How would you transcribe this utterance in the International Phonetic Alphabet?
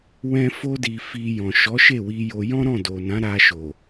wɛ̃˦ fo˦ di˧fi˧ jɔ̃˨ʃɔ˨˦ʃe˦˨wi˧ jo˧ jɔ̃˦ɾɔ̃˦˨ do˨nã˨˦ɾa˧ʃo˨

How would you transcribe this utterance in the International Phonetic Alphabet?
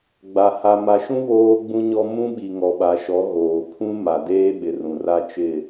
ɡ͡ba˨ ha˨ma˨ʃũ˦ βoː˦ɡ͡bũ˦ɲɔ˦ mũ˦ ɓi˨ŋɔ˨ɓa˨ʃɔ˨˦ ɣoː˨pʰũ˦ ma˨deː˦ ɓɪ˨rũ˨ra˦t͡ʃɪ˦˨

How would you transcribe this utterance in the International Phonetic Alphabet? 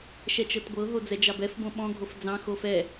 ʃɛt͡ʃɤtɡʷɤɦo d͡zɛd͡ʒɑbɛfbõ ɓɔ̃ɡʱof d͡zɑ̃ xofɛ

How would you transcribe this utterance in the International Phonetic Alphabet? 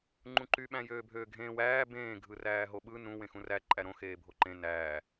ŋ͡ǃũǃy ɓæ̃jøːbʱøːɡʱẽːw æː bẽː ɡʱɯræːɦoɓɯ nũ wẽxũræ ǃʼæɾõ xeːbʱoǃẽ næː

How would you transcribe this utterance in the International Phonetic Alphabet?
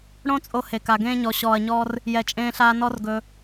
ɽõ˦t͡sʼo˧ he˨ka˨ɡẽː˦ɲɔ˧ ɕɔː˨ɐ̯ɲɔː˧r | jɛ˨t͡ʃʼẽː˧ɬaː˧ nɔ˦rɡɵ˧

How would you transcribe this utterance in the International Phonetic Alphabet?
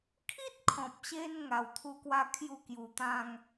kʰi˦t̚kʰɔ̃˨p̚ɕe˧n ŋa˧wt̪ʰu˦kwa˦ kʰju˥˧kju˧ t̪ã˦ŋ

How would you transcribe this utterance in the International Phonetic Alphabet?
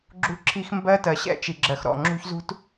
ɡ͡ǁṳ˦ǁʰi˦x mbɜ˦tɜ˨ ɕɛ̰˦t͡ʃi˨ɡ͡ǁɜ˨xɾɔ̰˦˨ ŋ͡ǁṳ˦çzṳ˦t

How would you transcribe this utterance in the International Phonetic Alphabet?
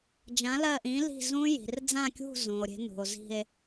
d͡ʒã˨˥lɜ˦˨ʔĩ˨˥li̤˦˨ zũ˦˥ ji̤˩rd͡zã˦˨kʲṳ˦˨ zũ˩o̯ɾʲe̤˨˥ nṳ˩o̯zi̤˦˨e̯

